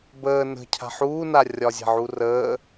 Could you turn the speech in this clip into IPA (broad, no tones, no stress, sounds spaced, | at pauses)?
b əː n ə̤ cʰ a̤ ħ uː n a rʲ ɒ zʲ a̤ ʕ u r əː